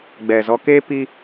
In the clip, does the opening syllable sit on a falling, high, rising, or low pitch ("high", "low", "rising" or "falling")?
low